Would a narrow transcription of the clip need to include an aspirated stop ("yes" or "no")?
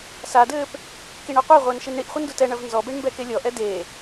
no